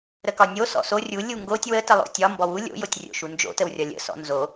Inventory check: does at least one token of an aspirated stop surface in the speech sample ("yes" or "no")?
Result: no